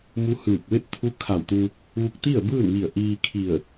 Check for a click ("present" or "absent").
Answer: absent